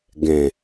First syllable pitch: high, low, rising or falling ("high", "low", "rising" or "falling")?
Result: low